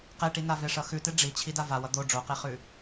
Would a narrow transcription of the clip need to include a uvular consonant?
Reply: yes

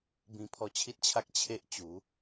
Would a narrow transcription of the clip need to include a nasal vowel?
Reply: yes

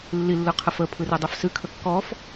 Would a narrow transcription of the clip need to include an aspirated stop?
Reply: yes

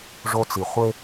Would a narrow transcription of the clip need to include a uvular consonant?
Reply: yes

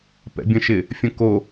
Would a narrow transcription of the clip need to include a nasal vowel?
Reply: yes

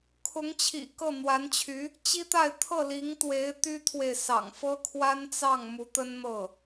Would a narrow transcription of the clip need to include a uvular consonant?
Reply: no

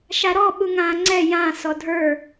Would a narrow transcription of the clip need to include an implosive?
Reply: yes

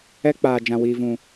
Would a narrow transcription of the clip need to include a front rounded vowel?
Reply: no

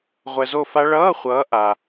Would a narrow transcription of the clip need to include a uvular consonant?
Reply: yes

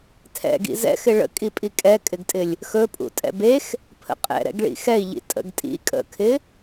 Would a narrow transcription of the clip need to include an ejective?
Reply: yes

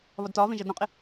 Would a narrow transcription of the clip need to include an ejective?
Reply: yes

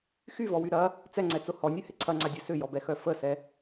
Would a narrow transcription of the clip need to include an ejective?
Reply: no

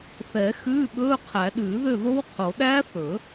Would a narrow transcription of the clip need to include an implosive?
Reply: yes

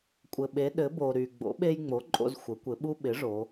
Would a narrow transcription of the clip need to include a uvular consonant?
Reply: no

